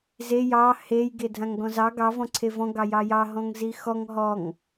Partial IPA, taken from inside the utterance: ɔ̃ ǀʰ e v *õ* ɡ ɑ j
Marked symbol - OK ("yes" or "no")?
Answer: no